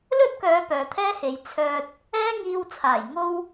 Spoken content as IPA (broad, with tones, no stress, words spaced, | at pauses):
lɵ˥t̚kœː˨˧ pœː˨t̪ʰɛː˥he˨˧j t͡sʰœː˧t̚ | ɛː˥ŋiː˧wt͡sʰaː˨˩j ŋo˥w